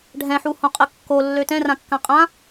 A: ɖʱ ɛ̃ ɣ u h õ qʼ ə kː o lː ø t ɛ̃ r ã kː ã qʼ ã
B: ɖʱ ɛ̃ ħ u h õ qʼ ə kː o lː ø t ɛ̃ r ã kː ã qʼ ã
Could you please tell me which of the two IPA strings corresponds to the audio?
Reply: B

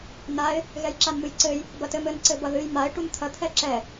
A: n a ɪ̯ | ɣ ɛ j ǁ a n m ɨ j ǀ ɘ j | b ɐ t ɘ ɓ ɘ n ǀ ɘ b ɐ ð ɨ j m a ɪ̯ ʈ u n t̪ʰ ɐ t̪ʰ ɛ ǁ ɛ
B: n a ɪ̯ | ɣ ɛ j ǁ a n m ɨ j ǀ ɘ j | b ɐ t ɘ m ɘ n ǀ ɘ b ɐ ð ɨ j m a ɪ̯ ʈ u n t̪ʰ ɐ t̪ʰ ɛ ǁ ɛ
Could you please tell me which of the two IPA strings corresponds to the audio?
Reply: B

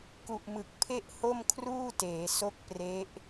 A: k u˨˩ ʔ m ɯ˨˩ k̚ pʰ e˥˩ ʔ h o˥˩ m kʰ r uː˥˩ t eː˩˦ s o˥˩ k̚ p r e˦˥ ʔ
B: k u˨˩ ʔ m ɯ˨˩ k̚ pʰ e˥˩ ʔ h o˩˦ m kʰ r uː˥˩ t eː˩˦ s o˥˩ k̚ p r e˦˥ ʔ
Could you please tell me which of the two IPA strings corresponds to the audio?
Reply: A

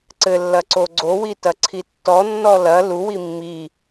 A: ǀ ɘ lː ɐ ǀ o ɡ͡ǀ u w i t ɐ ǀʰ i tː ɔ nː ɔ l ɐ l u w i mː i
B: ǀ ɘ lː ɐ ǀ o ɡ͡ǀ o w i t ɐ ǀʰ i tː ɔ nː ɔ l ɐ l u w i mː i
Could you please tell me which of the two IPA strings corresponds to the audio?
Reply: B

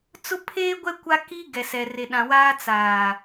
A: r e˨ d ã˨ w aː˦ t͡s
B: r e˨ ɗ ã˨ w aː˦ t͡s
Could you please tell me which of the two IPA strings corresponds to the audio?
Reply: B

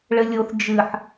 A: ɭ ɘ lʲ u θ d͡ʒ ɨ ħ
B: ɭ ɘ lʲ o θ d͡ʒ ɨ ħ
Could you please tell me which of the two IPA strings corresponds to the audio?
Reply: B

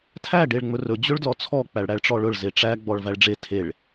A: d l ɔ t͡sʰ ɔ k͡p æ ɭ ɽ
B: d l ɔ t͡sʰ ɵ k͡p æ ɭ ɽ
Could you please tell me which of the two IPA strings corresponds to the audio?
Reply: A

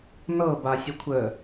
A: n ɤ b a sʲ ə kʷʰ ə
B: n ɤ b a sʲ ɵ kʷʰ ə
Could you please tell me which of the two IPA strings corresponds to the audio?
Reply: A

